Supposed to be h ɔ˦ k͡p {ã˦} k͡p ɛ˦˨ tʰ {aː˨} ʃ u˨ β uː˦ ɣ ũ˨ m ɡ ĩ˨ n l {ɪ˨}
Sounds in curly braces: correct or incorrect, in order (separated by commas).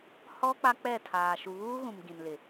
incorrect, correct, correct